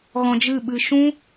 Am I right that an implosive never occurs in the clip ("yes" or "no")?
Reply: no